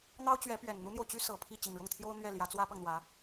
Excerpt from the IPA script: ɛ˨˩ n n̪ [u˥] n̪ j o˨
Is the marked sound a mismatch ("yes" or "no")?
no